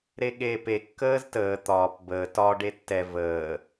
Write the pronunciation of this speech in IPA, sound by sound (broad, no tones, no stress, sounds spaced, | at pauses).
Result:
ɾ e ɠ eː p e kː əː z t əː t̪ ɒː p b əː t ɒ ɖ e tː ɛ v əː